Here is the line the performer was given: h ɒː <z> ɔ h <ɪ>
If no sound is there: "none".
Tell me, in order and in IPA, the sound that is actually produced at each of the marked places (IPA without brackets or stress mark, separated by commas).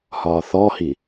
θ, i